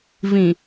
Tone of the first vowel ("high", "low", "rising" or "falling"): low